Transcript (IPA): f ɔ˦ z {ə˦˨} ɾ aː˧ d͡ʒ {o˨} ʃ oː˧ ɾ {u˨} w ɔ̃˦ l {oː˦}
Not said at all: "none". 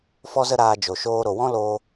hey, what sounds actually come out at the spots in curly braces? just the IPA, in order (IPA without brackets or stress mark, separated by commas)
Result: ə˦, o˨, o˨, oː˧